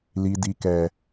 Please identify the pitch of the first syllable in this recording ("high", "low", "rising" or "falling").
low